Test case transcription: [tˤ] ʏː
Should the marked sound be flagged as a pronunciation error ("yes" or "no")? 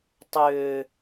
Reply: no